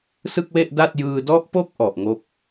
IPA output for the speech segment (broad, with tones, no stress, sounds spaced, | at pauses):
s ɯ˥˩ k̚ w e˥˩ ʔ d a˥˩ t̚ j ɯː˧ d ɔ˦˥ ʔ p o˦˥ k̚ ʔ ɔ˨˩ ʔ ŋ o˥˩ k̚